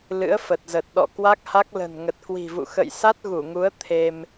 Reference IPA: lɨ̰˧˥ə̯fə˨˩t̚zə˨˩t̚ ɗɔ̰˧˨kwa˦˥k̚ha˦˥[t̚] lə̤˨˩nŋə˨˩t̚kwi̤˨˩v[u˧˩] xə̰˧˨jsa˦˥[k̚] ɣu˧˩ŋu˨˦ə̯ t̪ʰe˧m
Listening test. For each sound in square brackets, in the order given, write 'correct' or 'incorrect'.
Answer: incorrect, incorrect, incorrect

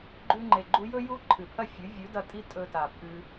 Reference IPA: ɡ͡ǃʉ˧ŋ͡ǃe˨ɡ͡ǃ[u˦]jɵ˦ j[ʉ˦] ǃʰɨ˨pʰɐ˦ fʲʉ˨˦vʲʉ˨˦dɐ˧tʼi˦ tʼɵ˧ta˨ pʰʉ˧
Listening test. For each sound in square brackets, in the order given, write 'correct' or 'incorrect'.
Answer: incorrect, incorrect

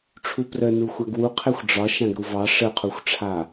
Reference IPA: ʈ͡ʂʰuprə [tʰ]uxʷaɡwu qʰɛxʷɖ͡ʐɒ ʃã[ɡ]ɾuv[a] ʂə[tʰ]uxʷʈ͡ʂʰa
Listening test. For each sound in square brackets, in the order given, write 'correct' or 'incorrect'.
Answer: incorrect, correct, incorrect, incorrect

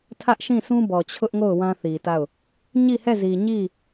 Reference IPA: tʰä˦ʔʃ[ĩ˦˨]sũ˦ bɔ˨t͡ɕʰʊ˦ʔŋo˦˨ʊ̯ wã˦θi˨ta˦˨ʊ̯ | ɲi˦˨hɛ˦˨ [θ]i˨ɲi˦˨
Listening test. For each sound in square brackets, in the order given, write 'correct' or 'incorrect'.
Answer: correct, incorrect

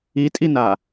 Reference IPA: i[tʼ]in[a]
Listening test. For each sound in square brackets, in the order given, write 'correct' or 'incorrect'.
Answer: correct, correct

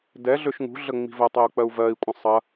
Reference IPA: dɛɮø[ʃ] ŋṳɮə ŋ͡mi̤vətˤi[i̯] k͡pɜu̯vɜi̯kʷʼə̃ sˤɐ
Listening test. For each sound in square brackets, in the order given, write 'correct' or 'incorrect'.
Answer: correct, incorrect

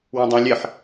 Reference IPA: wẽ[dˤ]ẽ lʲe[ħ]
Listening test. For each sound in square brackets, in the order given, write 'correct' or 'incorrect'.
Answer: correct, correct

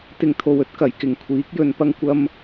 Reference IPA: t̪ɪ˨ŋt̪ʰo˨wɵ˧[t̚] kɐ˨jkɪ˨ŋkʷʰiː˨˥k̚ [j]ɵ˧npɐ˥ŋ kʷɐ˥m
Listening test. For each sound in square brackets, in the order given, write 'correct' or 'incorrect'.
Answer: correct, correct

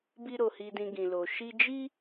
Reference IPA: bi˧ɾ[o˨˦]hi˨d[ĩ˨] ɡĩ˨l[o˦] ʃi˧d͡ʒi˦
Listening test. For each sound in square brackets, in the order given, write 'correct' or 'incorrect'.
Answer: incorrect, correct, incorrect

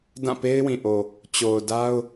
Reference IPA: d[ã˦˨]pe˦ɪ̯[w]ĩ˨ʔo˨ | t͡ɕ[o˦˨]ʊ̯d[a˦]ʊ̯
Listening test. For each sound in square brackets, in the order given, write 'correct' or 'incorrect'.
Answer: correct, correct, incorrect, correct

